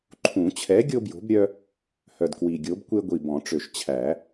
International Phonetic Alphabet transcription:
ǃʰũ˨˩˦t͡ɕʰɛ˨˥ ɡʲo˦bjo̤˨˥bɾʲœ˦ | hœ˨˩dkwi˨˩ɡʲo˨˥bkʷe˦ ɡʷi˨˩bɔ̃˨˩˦ʈ͡ʂø˨˩ʃ t͡ɕʰæ˨˩˦

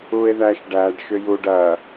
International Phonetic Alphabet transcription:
ue̯ðæʃɖæɖ ʃʏjuɖ ɐ

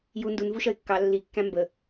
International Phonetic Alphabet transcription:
ju ndunvuʃʌɪ̯ kːɑ lːi kːæ̃mbə

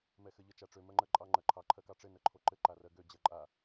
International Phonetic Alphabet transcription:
mɛxɘʎə t͡ʃaʈ͡ʂø mɜŋ͡ǃɜǃʼɑ ŋ͡ǃɜǃʰɑ ǃʰɜkɑʈ͡ʂɘ nɜǃʰoǃɘ ǃarɜɡø d͡ʑɜǃʼa

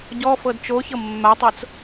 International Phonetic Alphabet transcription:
ɟɔfɤd t͡ʃoçɤ mːatˤot͡s

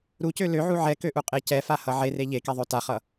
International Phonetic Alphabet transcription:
ɾucø løʕu ʕɛkøʔuqʼe cɛfahʌ ʕere ʎekeðˤø taχʌ

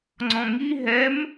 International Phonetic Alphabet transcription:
ŋ͡ǀɔ̃ŋi ɦɛm

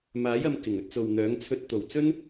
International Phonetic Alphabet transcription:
maː˨˥jɐ˨˧m kɪ˨˩ŋ ɵ˧t̚t͡so˨wn̪œː˨˥ŋ t͡sʰɵ˧t̚t̪o˨˩wt͡sɵ˥n

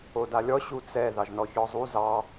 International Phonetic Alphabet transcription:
odalʲɔ ɕut͡sɛ ðɑʒnɔçɔzˤu zɑ

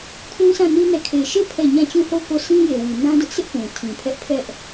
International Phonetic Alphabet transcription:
kʰũ˦sʰã˦˨ni˦ nɛ˦˨ kʰe˨ʃe˦˨ pʰɛ˦˨ ɲã˦˨t͡ɕũ˦˨ho˦˨ʊ̯ko˦˨ sʰĩ˦je˨wi˨ nã˦dʊ˦ʔsɪ˦ʔ pũ˨tʰĩ˨pʰɛ˦ʔ pʰɛ˦ʔ

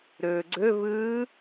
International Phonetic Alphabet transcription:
ɾɵːɡ͡ǀɵvɯː

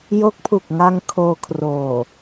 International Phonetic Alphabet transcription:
jo˦˥k̚pʰu˨˩k̚ ŋa˧ŋ kʰoː˧kʰroː˨˩

